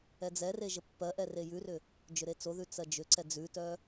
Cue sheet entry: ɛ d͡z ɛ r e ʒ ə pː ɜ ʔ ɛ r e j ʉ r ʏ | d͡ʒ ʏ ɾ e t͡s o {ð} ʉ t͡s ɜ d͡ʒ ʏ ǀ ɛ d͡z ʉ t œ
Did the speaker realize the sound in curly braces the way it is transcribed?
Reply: yes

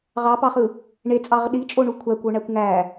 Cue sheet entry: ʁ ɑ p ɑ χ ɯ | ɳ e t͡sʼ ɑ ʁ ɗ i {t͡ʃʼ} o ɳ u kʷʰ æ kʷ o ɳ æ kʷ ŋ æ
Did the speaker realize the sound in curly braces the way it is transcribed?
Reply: yes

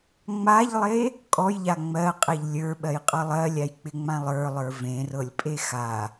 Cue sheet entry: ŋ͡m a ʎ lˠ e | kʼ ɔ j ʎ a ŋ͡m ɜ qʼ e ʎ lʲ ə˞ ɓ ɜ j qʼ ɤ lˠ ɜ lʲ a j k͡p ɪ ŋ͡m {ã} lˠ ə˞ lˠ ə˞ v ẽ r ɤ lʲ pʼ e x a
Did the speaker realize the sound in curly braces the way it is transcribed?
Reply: yes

